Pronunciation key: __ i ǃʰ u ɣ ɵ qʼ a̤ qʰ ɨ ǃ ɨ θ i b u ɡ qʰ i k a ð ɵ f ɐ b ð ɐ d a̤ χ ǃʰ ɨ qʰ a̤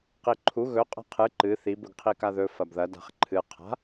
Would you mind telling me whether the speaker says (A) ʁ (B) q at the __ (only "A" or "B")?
B